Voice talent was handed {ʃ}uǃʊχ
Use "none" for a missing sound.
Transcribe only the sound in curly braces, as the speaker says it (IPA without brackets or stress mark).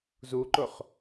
z